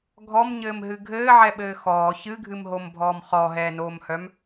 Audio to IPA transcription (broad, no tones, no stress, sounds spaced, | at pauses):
ɡʱ ɔ m ɲ ɘː m ɦ ɨ ɡʱ ɘː ʕ ɛ ɓ ɘː x ɔː ç ɨ ɡʱ ɨ m ɦ o m bʱ ɔː m χ ɔ ɦ ɛː n oː m h œ m